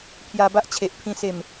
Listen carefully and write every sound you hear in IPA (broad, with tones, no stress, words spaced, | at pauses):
pʰja˧ba˦ʔt͡ɕʰe˨ʔpʰĩ˧ se˨˩m